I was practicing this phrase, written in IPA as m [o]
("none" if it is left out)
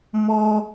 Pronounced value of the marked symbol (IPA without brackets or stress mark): ɔ